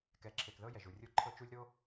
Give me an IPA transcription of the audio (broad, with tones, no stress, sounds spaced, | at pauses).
k ɛ˨ ǁʰ e˨ k ð ɤ˦ j ɛ˨ ʒ u˨ rʲ o˦ ǃʰ ɤ˦ t͡ʃ u˦ lʲ ɾ o˦